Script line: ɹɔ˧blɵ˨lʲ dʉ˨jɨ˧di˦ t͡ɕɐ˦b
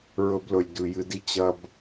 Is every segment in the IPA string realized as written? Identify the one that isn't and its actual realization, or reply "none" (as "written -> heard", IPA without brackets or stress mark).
ɔ˧ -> ɵ˧